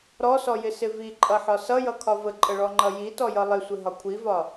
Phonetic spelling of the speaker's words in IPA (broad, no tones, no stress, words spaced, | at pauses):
ɾɔsɔjɪsɪ viǃʼʌħɒ sʌjʌkʰɒ vəǃʼəɭɔŋ͡ǃʌ jitɔjʌ lˠɪsʷɪɦɒ kʷʰivɒ